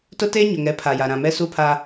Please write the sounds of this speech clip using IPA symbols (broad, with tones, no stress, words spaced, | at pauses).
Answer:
tʊ˦teː˦ ɲʊ˨ŋɛ˨˦ pʰa˨ja˨ɾã˨mɛ˦ su˦pʰa˦